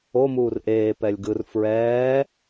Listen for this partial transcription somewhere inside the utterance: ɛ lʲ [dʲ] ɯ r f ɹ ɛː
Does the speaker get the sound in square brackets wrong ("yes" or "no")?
yes